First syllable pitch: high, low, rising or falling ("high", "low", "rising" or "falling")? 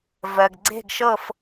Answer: low